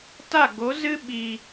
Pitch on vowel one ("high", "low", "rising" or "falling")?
falling